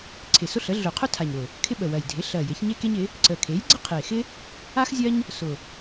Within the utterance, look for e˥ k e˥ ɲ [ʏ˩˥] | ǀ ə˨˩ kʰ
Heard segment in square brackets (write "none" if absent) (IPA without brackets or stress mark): ɪ˩˥